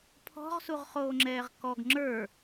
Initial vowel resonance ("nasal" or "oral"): oral